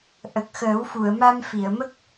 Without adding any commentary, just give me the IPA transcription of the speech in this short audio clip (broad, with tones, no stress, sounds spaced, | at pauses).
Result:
ʔ ə˨˩ k̚ x əː˨˩˦ w f u˨˩˨ ə̯ m a˧ m f i˨˩˨ ə̯ m ə˦˥ k̚